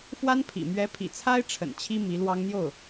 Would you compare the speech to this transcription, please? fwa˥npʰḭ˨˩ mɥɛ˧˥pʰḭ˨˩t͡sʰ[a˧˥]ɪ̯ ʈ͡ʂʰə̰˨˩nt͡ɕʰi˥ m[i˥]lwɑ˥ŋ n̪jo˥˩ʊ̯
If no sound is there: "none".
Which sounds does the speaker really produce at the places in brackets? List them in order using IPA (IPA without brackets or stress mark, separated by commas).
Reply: a˥, i˧˥